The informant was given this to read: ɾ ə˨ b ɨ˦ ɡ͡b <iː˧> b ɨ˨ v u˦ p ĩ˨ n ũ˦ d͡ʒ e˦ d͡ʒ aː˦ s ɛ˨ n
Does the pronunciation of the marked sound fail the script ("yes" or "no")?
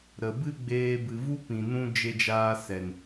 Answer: yes